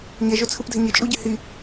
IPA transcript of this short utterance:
ɲɛʒot͡sʰɯpdʱɛ ɲɪt͡ʃʼuɟɪ hi

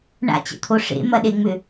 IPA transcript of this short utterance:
ɳa̰t͡ɕə̰t̪ʰo ʂḛmɐɗeŋ͡mʏ

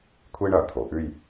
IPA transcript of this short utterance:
kʷʰi˥ɳɐ˩˧t̪ʰo˩˧ʔʉ˥˧j

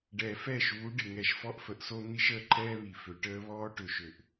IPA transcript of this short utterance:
ɖɛː˨fɛ˦˨ʃuː˨˦ ɖɪ˨ŋɛ˨ʃfɔ˦ʔ fə˨ʔso˦ n̪i˦ʃəː˦ǃʰɛː˦ βi˨fø˨ ʈəː˦βɔː˦ ʈø˨ʃø˨ʔ

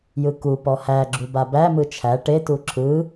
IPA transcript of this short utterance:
jɯkupɔ hæɡ͡ǁu babæmɯ t͡ʃʰæ ʈetu ǁʰɯ

